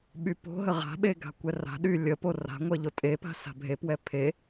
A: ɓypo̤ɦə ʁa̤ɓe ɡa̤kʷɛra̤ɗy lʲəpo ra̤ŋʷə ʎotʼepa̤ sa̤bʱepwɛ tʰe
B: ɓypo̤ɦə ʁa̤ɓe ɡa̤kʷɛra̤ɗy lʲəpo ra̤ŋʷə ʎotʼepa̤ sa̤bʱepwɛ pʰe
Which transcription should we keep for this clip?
B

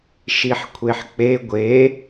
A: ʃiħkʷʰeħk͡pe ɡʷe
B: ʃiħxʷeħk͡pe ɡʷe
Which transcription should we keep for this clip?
A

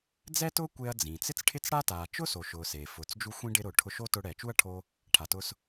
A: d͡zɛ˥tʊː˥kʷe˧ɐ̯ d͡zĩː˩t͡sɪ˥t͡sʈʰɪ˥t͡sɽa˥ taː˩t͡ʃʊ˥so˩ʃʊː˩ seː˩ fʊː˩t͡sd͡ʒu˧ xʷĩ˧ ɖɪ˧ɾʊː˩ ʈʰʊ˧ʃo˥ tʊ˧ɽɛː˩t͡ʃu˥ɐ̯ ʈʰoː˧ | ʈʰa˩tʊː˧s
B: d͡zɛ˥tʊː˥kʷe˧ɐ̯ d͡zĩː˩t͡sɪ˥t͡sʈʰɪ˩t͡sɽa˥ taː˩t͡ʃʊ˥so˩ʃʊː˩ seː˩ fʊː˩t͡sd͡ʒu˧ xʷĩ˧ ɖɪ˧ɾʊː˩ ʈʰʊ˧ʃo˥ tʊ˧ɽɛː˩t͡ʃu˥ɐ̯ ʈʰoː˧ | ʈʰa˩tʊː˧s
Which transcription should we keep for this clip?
A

